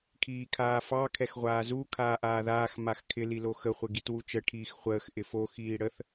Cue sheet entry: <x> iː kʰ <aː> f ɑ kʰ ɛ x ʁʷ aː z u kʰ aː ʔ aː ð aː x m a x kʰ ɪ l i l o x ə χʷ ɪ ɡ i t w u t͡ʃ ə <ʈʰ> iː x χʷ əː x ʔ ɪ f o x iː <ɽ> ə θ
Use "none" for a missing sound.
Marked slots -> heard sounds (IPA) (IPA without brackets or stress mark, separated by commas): kʰ, aː, ʈʰ, ɽ